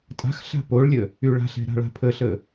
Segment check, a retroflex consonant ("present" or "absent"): present